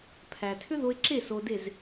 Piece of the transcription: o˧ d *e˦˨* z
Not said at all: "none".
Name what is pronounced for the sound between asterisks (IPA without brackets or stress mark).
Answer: e˦˨